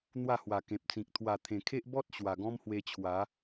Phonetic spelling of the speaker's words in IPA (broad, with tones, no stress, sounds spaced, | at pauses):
n̪ w a˥˧ h w a˨˩ k ẽ˨ p̚ t͡s ĩ˨ k̚ t̪ʰ w a˨˩ t̪ʰ ẽ˨˩ kʰ e˦ ʔ b ɔ˦ t̚ ɕ w a˨˩ ɡ ɔ̃˦ m h w e˧ t͡ɕʰ w a˨˦